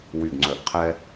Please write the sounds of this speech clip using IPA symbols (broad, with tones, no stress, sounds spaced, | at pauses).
w y˧˩ ɡ ŋ͡ǀ œ˧˩˧ ʔ qʰ ɛ˥